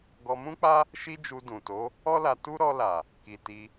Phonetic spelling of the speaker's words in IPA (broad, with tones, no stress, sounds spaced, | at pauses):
ɡ ɔ˧ m ũ˦ k͡p a˦ | ʃ i˦ d͡ʒ u˧ d ũ˨ t o˨˦ | ɔ˦ l a˧ t u˦ ɾ ɔ˧ l a˨ | k i˨ t i˧